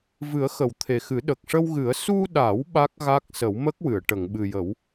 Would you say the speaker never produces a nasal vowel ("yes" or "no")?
yes